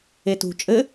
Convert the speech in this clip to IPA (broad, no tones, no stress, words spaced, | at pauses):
etṳ t͡ʃʼɘ